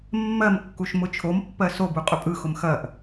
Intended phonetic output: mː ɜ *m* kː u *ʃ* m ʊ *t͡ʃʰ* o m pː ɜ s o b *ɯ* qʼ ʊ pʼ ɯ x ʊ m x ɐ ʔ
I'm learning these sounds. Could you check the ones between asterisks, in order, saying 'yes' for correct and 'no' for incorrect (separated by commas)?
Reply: yes, yes, yes, no